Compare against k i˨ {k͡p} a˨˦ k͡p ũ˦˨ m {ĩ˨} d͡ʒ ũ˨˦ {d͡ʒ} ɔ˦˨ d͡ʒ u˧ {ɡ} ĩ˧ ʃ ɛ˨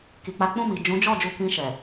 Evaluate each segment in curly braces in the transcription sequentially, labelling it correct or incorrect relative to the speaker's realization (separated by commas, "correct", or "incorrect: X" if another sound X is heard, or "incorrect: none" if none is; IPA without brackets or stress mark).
correct, incorrect: i˨, correct, incorrect: k